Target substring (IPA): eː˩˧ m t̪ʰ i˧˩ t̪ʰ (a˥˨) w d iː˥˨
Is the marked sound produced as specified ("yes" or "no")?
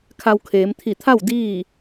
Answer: yes